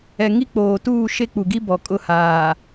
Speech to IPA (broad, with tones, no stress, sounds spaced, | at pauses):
ɛ˨ ŋ i˦ k͡p oː˨ t uː˦˨ ʃ e˦ k͡p u˨ ɡ i˦ b ɔ˨ kʼ ʊ˦˨ h aː˨